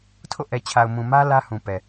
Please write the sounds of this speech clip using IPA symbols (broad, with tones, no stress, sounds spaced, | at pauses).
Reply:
tʰ o̰˦˨ ʔ ɛ˨ t͡ɕʰ a˨ ʊ̯ m ũ˨ m ä˦ l ä˦ h ũ˨ p ɛ˨